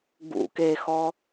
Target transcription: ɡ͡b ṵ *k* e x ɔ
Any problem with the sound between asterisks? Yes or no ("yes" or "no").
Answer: no